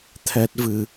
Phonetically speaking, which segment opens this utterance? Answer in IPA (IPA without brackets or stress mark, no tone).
t̪ʰ